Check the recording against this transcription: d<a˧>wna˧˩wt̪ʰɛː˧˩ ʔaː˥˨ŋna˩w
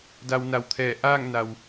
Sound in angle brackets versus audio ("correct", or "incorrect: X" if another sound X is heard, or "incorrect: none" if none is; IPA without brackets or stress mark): correct